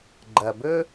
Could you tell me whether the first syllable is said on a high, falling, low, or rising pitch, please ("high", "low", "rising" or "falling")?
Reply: low